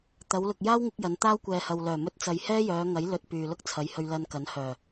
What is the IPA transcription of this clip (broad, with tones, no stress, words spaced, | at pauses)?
t̪ɐ˨˧wlʊ˨k̚jaː˥wŋɪ˧k̚ jɐ˨˧n t̪aː˥wkʷɛː˨hɐ˨wlœː˨˩ mɵ˧t̚t͡sɐ˨j hɛː˥jœː˨˧ŋɐ˨˥j lɵ˧t̚pyː˨lʊ˥k̚t͡sʰɐ˨˧j hɵ˧ɥlɐ˧nkɐ˨˥nhœː˨˩